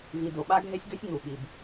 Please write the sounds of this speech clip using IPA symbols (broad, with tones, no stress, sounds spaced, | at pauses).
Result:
v i˨ d o˨ ɓ a˦ ɡʱ e˦ sʲ ɡ ø˦ sʲ ŋ u˨ ɓ i˨ b